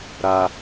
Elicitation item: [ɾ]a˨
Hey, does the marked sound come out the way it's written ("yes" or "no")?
yes